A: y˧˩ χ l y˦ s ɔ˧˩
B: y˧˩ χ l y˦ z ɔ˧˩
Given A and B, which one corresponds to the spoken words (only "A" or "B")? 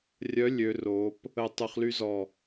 B